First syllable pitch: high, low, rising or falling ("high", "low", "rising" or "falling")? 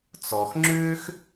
low